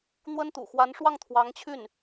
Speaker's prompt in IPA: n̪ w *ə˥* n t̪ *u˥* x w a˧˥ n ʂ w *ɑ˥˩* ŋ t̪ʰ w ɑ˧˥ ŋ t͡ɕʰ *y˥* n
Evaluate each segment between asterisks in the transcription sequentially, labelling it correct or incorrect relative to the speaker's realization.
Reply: correct, incorrect: ṵ˨˩, correct, incorrect: y˥˩

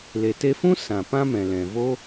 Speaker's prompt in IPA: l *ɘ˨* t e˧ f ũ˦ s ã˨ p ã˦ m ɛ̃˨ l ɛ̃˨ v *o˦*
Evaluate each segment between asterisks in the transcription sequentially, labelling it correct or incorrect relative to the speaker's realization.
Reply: incorrect: e˨, correct

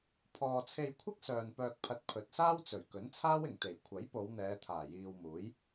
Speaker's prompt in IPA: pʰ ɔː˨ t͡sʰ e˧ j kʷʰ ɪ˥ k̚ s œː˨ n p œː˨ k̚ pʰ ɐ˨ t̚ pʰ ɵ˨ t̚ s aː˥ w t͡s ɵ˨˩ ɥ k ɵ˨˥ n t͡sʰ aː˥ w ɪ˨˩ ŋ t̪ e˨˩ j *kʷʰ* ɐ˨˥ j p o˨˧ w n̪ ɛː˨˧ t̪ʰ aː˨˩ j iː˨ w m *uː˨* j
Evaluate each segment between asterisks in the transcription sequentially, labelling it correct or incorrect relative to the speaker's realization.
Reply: correct, incorrect: uː˨˥

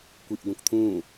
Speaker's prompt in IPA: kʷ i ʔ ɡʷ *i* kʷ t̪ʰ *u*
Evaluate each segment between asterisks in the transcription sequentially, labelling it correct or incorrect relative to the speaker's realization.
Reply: incorrect: ĩ, incorrect: ũ

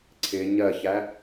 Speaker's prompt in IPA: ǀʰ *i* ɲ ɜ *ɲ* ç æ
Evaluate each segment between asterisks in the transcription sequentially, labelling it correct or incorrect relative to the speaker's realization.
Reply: incorrect: ɪ, incorrect: none

